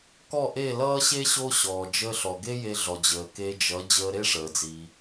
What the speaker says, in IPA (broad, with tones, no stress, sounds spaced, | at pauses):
k ɔ˥˩ ʔ e˥˩ l ʌː˥ ɕ e˥ ɕ o˥ ɕ ɔː˩ d͡ʒ əː˧ ɬ ɔ˩ ɡ e˥ j e˧ ɮ ɔ˩ d͡ʑ əː˩ k e˧ d͡ʒ ʌ˩˥ d͡ʑ əː˧ ɾ e˥ ʂ əː˩ d͡z i˩